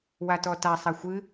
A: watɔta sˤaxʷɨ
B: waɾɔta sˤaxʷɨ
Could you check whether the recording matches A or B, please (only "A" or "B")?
A